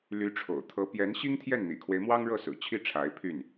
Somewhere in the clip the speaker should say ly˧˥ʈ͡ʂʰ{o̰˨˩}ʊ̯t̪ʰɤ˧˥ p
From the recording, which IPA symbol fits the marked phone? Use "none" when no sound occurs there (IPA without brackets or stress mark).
o̰˨˩